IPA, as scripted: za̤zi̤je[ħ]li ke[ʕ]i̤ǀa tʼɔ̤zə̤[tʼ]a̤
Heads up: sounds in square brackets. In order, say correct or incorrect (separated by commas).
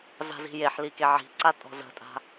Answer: correct, correct, correct